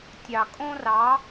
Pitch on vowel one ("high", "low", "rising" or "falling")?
low